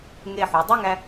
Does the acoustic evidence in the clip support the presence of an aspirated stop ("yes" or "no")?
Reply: no